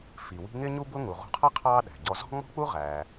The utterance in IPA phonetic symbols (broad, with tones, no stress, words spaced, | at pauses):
fi˩ wi̤˥ ŋɪː˥ɲu˥ bʊ˥ŋu˩ ʁṳ˧qʰʌ˥ qʰɑː˥ɗæ̤˩ ɟɔ˧ zɔ̤˥ŋ͡mɔ̤˥k͡pu˥ ʁæː˩